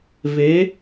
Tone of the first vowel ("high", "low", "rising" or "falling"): rising